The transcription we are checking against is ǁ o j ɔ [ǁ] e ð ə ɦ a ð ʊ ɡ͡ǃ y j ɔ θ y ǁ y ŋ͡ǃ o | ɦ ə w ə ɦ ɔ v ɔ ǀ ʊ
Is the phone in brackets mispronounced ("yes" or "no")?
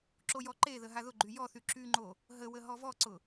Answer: yes